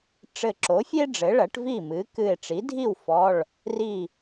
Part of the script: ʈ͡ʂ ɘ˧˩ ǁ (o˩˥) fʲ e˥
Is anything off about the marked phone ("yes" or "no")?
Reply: no